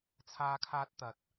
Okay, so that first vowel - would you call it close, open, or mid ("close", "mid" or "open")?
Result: open